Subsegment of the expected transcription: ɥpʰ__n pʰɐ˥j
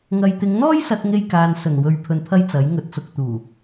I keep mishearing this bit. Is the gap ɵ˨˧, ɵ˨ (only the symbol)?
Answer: ɵ˨